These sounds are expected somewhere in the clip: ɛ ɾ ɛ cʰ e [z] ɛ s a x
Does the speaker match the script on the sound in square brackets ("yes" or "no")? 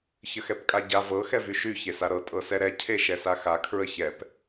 no